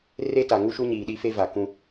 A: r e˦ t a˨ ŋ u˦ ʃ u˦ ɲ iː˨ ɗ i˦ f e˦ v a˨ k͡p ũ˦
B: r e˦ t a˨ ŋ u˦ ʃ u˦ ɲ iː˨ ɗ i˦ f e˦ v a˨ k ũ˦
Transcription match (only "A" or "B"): B